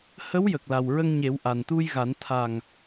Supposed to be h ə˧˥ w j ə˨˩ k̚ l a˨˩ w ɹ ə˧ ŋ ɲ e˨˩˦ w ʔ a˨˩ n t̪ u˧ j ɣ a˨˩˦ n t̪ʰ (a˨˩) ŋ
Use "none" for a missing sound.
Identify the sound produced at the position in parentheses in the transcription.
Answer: a˨˩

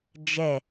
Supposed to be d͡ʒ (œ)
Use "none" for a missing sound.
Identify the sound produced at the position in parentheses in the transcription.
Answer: ɛ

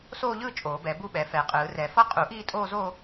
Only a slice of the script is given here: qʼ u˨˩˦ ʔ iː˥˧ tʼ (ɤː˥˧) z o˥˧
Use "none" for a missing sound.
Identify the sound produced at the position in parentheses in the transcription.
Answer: oː˥˧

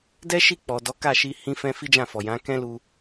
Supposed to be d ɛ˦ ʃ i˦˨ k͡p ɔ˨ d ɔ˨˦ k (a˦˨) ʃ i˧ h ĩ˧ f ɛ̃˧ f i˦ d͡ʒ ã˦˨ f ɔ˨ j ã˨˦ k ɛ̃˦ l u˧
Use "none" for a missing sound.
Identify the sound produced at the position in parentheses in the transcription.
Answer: a˦˨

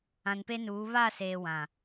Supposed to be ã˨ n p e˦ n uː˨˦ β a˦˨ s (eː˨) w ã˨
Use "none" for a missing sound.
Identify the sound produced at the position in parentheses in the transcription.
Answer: eː˨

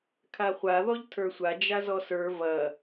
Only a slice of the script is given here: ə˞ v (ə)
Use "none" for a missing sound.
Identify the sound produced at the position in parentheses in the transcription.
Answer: ɐ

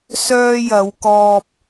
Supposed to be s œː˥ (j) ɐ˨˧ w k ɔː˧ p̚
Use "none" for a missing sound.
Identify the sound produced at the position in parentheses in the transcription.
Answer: j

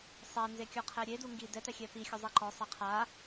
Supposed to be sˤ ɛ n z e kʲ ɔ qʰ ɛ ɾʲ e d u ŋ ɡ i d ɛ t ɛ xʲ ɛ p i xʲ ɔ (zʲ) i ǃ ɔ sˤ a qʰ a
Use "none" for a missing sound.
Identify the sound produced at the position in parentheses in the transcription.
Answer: zˤ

